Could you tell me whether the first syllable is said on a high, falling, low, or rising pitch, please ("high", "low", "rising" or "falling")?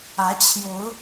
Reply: rising